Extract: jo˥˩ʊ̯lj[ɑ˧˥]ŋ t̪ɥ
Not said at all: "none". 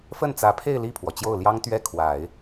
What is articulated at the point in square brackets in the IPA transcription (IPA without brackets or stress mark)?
ɑ˥